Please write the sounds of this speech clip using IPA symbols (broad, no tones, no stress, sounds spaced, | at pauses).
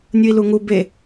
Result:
nʲ u i̯ l u ŋ u b e